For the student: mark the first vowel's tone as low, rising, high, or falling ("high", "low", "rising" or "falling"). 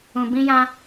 low